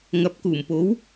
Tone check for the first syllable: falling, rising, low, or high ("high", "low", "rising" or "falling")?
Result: rising